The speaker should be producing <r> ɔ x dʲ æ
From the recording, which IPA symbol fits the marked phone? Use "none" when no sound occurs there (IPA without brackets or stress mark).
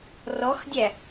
r